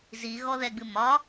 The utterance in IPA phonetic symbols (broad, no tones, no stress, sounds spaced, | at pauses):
z i ɣ ɔ ð ɛ ɡ͡b ɨ m ɒ